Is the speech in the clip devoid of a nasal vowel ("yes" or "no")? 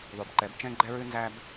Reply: no